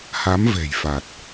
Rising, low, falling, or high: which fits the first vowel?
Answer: rising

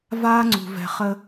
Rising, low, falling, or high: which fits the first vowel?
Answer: high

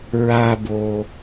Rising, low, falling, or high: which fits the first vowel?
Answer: high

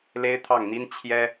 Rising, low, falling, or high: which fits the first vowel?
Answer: high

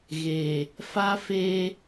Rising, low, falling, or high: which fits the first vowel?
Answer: low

